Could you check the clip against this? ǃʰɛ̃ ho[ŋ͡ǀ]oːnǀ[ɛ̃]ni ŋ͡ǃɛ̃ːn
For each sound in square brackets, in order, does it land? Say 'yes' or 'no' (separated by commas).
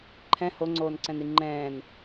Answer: yes, yes